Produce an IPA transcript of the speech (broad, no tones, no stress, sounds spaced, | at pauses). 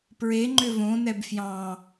p ɹ e ŋ͡ǃ ʏ v õ n ɛ b f j ɑ̃